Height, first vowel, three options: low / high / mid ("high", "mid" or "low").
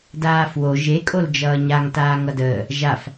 low